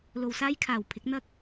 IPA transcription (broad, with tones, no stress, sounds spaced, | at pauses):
l o˨ w s aː˥ j kʰ aː˨˩ w pʰ ɪ˨˥ k̚ n̪ ɐ˥ k̚